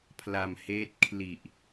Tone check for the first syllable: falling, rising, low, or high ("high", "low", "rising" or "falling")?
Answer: low